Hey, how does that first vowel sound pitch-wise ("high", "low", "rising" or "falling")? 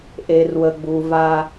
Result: low